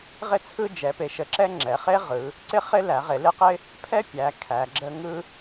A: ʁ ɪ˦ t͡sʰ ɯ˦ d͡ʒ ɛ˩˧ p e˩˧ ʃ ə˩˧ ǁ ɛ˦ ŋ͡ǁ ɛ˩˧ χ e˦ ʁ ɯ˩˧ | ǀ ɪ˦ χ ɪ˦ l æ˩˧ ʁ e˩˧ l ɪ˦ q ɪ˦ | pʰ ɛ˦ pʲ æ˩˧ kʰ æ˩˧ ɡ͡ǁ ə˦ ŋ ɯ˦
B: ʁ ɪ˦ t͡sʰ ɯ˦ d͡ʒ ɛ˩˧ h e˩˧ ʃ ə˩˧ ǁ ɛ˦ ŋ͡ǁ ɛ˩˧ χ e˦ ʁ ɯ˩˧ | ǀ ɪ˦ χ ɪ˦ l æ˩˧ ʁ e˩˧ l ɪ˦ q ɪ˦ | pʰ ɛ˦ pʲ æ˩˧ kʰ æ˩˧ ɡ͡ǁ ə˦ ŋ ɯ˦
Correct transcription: A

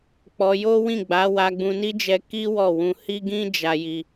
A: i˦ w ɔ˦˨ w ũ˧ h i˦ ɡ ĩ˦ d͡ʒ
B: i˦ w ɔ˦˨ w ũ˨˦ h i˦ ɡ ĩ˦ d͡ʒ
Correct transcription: A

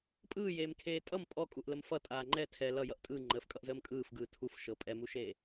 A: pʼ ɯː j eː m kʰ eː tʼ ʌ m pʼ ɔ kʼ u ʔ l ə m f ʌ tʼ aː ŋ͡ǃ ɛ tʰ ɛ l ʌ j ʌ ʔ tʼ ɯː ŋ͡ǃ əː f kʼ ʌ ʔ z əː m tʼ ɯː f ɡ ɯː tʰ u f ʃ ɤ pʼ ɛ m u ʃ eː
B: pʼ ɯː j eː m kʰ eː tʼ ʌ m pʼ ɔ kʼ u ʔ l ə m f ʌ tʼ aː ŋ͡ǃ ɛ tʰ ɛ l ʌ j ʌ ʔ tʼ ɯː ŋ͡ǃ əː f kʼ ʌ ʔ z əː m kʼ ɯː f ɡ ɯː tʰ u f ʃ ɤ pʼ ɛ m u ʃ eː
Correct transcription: B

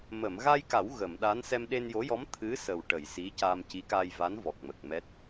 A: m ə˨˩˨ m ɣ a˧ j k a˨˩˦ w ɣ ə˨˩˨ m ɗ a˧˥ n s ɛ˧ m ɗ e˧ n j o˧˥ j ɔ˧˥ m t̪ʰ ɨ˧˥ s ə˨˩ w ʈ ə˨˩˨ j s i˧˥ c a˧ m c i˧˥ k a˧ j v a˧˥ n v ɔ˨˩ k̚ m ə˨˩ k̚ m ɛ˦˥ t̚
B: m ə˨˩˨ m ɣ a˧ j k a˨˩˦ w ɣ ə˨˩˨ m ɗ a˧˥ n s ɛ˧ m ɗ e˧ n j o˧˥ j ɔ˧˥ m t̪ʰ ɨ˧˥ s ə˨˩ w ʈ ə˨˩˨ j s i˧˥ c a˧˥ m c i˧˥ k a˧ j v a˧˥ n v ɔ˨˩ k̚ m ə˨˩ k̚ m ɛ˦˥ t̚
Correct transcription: A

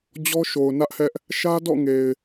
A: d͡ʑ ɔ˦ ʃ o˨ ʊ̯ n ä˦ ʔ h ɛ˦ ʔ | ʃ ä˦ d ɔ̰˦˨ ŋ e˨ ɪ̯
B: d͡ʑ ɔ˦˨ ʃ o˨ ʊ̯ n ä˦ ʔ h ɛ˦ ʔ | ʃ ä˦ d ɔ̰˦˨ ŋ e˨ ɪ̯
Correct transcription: A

